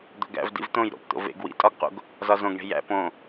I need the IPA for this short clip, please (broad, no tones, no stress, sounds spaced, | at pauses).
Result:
d̪ o̤ ɡ æ̰ v d ḭ v t̪ õ j ɾ o̰ p t̪ o̰ v ḛ ɡ w ḭ tʼ ɒ ɡ q o̰ ɡ | z ɒ z õ ɡ ɳ e̤ j æ̰ p õ